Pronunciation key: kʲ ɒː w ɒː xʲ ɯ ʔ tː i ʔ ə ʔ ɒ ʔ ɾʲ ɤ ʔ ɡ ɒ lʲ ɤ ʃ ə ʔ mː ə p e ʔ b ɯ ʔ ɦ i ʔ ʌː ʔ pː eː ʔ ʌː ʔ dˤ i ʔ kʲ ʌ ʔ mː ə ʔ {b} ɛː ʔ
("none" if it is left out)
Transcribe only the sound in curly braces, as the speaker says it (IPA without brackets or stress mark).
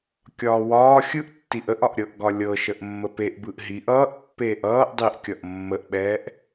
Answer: ɓ